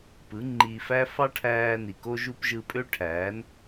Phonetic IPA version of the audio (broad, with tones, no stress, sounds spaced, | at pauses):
p ɯ˨˦ ŋ͡ǃ iː˧ f æ˦ f ɑ˦ ʈʰ æː˧ n i˨ k o˧ ʒ u˧ p ʒ ɯ˧ pʼ ø˦ ʈʰ æː˨˦ n